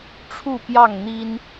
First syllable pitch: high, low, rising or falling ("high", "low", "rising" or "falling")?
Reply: falling